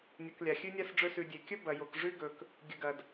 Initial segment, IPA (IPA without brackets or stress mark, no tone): nʲ